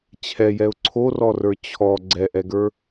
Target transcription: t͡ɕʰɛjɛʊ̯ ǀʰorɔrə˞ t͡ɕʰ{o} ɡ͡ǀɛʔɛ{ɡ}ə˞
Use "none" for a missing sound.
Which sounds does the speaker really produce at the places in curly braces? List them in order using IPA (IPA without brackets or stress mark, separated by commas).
ɔ, ɡ